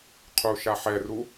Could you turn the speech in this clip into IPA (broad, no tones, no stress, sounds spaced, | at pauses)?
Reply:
qʰ u ʃ a ħ ɛ r u